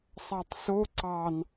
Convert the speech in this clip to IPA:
sˤ ɑ tˤ s o ǀ ɑ n

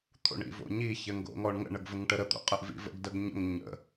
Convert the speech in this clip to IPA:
t̪ʰ o̰ ɳ ḭ v o̰ ɲ i ç ɘ ŋ ɡ o̰ ŋ ɔ ɳ ŋ ə̰ ɳ ə ɡ v ə ŋ ʈ ə ɾ ə t̪ o̰ qʼ ə ʔ v ḭ v ə̰ ɡ d ə ɡ ɲ ə̰ ŋ ɲ ə̰

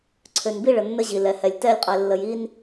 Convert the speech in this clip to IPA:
ǀʰ ø˨ n b i˦ ɭ ə˨ nː ə˦ ʑ i˨ l ɛ˨ h ɛ˨ lʲ t ɛ˦˨ lʲ qʼ ɛ˨ lː ə˨ j i˦ n

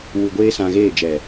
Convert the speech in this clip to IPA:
w u˧ ɡʷ eː˦ s ã˧ ɣ eː˦˨ d͡ʒ ɛ˨

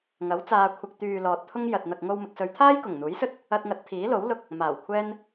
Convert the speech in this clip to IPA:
ŋ ɐ˨˥ w t͡s aː˧ kʷʰ ɐ˨ k̚ t̪ yː˨ l ɔː˨ t̚ t̪ʰ ʊ˥ ŋ j ɐ˨ t̚ n̪ ɐ˨ k̚ ŋ o˧ w m ɪ˨ k̚ s ɵ˨˧ ɥ t̪ʰ aː˥ j k ʊ˨˩ ŋ n̪ uː˨˥ j s ɵ˥ t̚ | ɐ˧ t̚ ŋ ɐ˨˥ t̚ t̪ʰ iː˨˥ l o˨˥ w l ʊ˧ k̚ | m aː˨˩ w kʷʰ ɛː˥ n

